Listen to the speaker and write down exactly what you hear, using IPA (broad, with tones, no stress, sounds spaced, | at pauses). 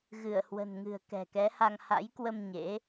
ɣ ɨ˧˩ ə̯ h w ə̤˨˩ n ŋ ɨ̤˨˩ ə̯ k ɛ̤˨˩ k ɛ˨˦ h a˧ ŋ h a̰˧˥ j k w ə˧ m ɲ ḛ˧˥